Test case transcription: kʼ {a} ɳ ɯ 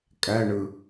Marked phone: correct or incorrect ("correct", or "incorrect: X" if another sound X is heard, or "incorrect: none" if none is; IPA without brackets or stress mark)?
incorrect: æ